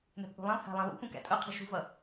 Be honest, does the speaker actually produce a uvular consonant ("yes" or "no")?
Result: yes